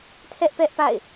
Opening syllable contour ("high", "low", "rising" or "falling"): high